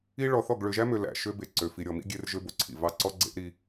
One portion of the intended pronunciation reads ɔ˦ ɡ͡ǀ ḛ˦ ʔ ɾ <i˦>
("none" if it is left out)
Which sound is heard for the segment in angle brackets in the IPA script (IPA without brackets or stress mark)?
i˦